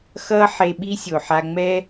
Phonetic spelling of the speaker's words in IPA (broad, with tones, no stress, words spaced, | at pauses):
xʌː˥ħe˧ɓi˥ sʲo˩ħa˧ŋ͡mɛː˥